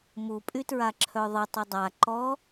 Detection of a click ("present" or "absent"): present